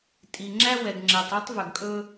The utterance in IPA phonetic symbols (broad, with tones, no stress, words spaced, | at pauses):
tʼi˨ ŋ͡ǁæ˦wɛ˨ɡŋ͡ǁɛ˨tˤ o˦tˤvœ˨ɡkʼɵ˦